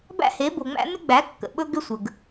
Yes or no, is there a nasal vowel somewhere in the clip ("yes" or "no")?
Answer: no